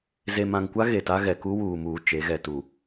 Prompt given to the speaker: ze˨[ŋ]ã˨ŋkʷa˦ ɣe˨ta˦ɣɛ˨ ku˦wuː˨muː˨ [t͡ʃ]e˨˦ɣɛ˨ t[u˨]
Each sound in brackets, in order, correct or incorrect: incorrect: m, correct, correct

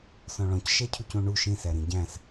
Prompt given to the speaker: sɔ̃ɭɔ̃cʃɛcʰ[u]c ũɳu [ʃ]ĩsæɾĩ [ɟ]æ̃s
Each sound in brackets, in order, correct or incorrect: correct, correct, correct

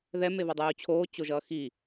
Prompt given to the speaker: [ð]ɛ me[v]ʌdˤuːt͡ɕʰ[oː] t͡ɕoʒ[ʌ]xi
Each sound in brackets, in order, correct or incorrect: correct, correct, correct, incorrect: ʌː

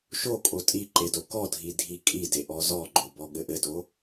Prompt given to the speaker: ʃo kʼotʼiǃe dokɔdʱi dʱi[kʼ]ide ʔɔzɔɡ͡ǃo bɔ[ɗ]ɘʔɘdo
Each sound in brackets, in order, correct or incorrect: correct, incorrect: ɠ

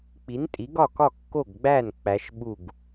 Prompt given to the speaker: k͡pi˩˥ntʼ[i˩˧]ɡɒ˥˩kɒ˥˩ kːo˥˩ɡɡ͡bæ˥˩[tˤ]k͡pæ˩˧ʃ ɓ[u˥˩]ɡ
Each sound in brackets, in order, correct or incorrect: incorrect: i˩˥, incorrect: n, correct

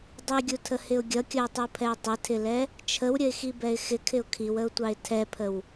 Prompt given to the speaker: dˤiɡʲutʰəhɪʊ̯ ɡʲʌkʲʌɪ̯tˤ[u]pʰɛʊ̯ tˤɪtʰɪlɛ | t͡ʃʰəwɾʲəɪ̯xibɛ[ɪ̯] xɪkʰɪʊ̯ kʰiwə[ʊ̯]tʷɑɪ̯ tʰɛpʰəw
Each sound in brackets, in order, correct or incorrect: correct, correct, correct

